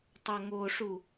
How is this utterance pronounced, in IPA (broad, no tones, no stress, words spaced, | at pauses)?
tˤɐŋoʂu